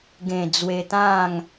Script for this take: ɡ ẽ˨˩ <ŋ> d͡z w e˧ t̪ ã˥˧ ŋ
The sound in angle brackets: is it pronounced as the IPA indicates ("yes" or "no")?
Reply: no